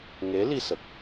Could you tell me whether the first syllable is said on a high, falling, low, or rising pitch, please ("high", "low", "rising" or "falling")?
rising